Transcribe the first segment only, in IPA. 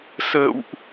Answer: s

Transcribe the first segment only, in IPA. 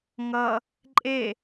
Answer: ŋ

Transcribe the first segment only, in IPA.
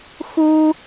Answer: x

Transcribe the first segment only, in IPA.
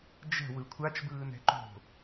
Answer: d͡ʒ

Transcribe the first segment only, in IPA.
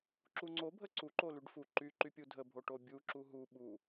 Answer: ǁ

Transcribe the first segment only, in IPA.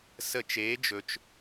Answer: s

